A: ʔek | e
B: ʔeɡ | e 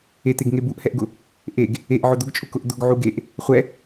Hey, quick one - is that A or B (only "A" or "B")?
B